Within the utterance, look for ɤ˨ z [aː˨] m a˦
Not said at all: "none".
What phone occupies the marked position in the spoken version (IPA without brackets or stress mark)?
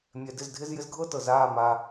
aː˦˨